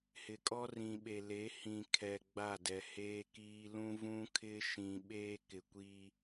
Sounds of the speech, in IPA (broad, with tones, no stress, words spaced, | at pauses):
hɪ˨kʼɔ˦ rĩ˨ɓe˨le˨˦ hĩ˨kʰɛ˨ ɡ͡ba˦˨dɛ˨heː˦kiː˦ lũ˦vũ˦kʰɪ˦ ʃĩ˨ ɓeː˦kɪ˨kʷiː˦